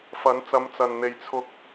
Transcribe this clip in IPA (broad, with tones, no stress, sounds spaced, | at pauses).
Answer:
f ɐ˨˥ n t͡s ɐ˨˧ m t͡s ɐ˨ n n̪ e˨ j t͡sʰ ʊ˧ k̚